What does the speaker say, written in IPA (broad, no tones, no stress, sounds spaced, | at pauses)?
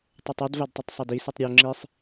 tˤ u tˤ u d v a d tˤ e tˤ sˤ a d i s i tˤ ɾʲ o ŋ͡ǁ i sˤ